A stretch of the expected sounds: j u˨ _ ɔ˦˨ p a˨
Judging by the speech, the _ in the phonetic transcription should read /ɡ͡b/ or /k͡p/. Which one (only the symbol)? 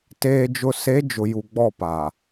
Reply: ɡ͡b